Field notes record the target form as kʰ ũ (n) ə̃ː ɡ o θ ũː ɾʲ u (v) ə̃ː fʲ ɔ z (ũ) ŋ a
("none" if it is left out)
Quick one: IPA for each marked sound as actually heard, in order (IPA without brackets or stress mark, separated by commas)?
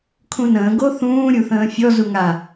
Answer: n, θ, u